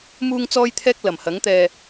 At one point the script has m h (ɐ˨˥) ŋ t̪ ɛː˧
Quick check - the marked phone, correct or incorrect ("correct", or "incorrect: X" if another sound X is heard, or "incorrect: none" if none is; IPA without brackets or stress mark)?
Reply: correct